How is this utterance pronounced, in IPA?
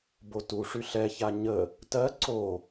b o t u ʂ y ɬ ɛ ç a ɲ ə | t ɜ ǀ o

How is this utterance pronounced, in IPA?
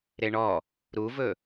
ɾ e ɳ ɔ | ɾ u v ɵ

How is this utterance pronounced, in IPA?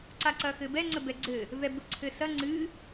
ǀ a ǀ ɐ x ɘ b ɛ ŋ͡ǀ ə b ɛ ɡ͡ǀ ɘ | v ɛ b ɘ ǀʰ ɘ s ɐ ŋ͡ǀ ɨ

